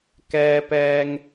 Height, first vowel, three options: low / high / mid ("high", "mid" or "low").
mid